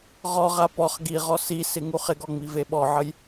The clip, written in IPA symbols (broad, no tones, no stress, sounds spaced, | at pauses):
ʁ ɔ ʁ a p ɔ χ ɡ i ʁ ɔ s i s ɪ ŋ u χ ɪ ɡ ɔ ŋ͡m i v e ɓ ɔ ʕ ə j